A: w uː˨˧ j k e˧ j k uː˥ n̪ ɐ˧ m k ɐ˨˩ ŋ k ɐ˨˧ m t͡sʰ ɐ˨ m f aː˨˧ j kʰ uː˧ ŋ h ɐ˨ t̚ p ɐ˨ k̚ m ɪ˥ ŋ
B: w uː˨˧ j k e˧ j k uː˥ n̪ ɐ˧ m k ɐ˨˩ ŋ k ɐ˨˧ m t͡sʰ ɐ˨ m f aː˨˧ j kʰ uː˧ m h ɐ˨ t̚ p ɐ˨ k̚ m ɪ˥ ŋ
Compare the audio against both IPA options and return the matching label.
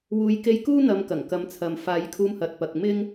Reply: B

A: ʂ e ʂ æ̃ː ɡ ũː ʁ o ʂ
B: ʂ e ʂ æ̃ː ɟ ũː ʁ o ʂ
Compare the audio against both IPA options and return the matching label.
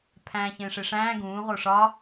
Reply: A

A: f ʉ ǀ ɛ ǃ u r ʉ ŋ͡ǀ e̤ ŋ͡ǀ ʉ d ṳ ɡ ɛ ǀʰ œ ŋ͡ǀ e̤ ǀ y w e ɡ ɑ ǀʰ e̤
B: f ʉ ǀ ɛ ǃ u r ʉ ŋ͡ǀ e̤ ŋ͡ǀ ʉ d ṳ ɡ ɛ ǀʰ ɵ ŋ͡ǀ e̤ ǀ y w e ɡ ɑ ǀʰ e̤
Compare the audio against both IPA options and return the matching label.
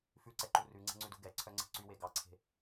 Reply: A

